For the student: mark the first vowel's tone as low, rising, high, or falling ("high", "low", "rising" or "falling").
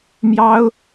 high